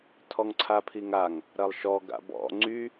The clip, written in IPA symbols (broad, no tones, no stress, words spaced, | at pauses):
tʰɔŋǀʰapʰiŋaŋ | ɾɐlˠʃɔ ɡa̰bɔ̰ ŋ͡ǀy